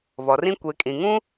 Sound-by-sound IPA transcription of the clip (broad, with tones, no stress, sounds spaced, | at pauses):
β ɔ˨ r ĩ˦ kʷ e˨˦ kʼ ĩ˨ ŋ ũ˦